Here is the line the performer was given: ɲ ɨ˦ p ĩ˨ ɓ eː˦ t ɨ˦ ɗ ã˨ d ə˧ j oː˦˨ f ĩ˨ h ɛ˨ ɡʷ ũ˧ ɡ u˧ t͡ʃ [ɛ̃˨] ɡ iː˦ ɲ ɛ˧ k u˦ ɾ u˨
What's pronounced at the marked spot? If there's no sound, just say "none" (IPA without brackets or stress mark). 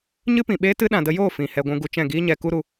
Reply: ɛ̃˦˨